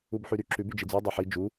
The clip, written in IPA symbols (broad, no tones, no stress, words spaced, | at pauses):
ubħyɾy ǁʉb yd͡ʒid͡zʉ dˤɜħi d͡ʒu